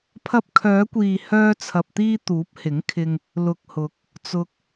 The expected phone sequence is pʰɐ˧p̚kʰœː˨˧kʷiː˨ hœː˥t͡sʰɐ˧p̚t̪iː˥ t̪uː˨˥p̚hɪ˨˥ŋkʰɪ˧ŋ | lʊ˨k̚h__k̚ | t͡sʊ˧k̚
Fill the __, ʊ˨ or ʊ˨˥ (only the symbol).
ʊ˨˥